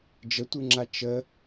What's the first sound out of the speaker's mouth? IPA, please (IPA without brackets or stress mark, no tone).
d͡ʒ